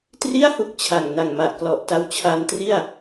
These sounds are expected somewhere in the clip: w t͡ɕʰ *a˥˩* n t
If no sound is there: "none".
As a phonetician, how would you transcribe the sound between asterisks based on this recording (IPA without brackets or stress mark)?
a˧